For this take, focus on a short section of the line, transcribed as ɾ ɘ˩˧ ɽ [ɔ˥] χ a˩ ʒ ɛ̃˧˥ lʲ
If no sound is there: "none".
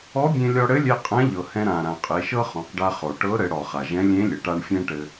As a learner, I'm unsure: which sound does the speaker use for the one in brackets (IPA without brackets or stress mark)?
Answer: ɔ˩